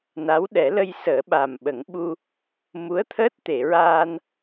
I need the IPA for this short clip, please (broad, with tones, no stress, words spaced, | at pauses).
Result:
na˧˥w ɗɛ˨˩˦lə˧jsəː˨˩˦ɓa˨˩m ɓə˨˩˦ŋɓu˧ | mu˧˥ə̯t̪ʰəː˦˥t̚t̪e˨˩˨ɹaː˧n